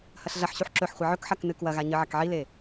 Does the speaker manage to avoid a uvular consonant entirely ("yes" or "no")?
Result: no